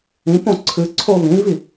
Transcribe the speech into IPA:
ĩ p õ ǀʰ ɨ ǀʰ o β ĩ v i

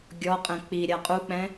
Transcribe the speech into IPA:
ɡʲ ɔ qʼ ɛ̃ k͡p i ɾʲ a qʼ u k͡p ɛ̃

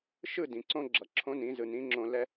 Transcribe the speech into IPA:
ʃ ɯ˦˨ d ĩ˨ ǀ õ˦ ɡ͡ǁ ʌ˨ ǁʰ õ˦ n ĩ˨˦ z ɯ˨ n ĩ˨˦ ŋ͡ǁ õ˧ l ɛ˦

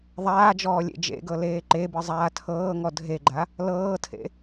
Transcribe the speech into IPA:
ðˤ aː d͡ʒ ɔː lʲ ḛ d͡ʒ ḛ ɡ ɤ l eː ǃ e b ɯ zˤ aː tʰ ɤː ŋ ɔ dʱ e ɡ͡ǃ a | l ɤː tʰ ḛ

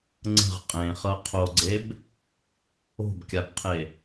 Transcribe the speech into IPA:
ŋ͡ǀ ə̤ ʁ qʼ ẽ χ ɤ qʰ o ɡ͡ǀ e b | o̤ b kʲ a b qʰ e

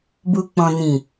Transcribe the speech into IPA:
b u˨ k͡p ɔ̃˨ n ĩ˨

